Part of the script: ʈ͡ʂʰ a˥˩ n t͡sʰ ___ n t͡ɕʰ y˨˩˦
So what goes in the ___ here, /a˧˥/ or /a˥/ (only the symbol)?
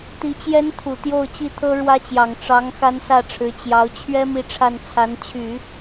a˧˥